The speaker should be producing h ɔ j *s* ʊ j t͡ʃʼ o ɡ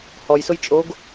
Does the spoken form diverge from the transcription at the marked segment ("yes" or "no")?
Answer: no